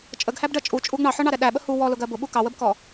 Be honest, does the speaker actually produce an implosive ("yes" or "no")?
yes